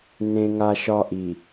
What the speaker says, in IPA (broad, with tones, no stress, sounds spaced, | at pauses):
n ẽ˦ ŋ a˦ ʃ ɒ˦ ʔ i˨